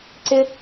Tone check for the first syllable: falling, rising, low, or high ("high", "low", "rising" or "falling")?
high